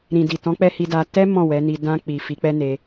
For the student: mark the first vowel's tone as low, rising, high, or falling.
low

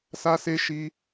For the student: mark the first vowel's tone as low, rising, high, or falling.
high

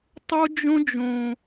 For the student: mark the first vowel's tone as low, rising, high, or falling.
high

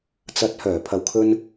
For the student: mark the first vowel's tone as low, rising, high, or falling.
rising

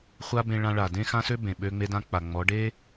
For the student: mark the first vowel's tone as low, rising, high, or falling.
high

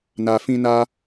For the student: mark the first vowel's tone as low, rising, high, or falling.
low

